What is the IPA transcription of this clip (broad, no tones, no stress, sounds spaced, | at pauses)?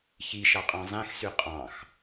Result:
ç i ʃ ɑ qʼ ɑ̃ zˤ ẽ x s y qʼ ɑ̃ x